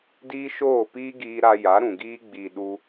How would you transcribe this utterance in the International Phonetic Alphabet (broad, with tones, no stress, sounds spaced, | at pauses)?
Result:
d iː˦ ʃ oː˦˨ p iː˦ ɡ iː˧ ɾ a˧ j a˨˦ ɾ ũ˨ ɡ iː˧ ɡ͡b iː˨ ɗ u˧